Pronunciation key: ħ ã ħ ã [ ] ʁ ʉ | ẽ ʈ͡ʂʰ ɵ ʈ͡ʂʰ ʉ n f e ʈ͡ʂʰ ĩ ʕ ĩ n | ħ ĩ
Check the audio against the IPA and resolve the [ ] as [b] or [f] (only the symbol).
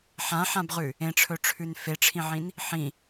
b